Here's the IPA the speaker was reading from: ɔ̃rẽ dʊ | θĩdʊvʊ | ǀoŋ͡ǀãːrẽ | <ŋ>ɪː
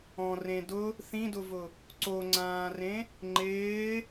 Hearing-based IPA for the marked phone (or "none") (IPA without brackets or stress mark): ŋ͡ǃ